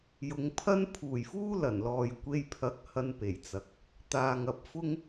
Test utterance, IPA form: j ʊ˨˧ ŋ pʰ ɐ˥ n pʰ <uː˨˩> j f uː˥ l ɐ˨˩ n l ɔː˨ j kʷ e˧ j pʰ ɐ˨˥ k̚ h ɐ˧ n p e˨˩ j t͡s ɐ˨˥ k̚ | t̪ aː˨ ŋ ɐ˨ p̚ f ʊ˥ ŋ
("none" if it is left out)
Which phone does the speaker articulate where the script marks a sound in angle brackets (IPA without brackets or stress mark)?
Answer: uː˨˩